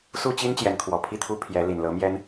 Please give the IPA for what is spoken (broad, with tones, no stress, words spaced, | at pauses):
su˥˩t͡ɕi˥n t͡ɕjɛ˧˥nkʰwɔ˨˩pʰi˥˩t̪ʰu˥ pʰjɛ˧˥ li˨˩nlɤ˧˥mjɛ˥n